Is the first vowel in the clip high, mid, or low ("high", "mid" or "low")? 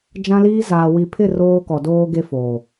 low